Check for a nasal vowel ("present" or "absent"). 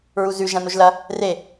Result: present